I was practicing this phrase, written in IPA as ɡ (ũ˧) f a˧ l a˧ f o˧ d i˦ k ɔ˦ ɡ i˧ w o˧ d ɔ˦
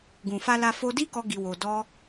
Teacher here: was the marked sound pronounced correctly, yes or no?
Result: no